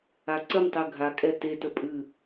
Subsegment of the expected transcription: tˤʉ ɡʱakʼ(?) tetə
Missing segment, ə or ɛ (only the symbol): ɛ